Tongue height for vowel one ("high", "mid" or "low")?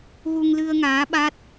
high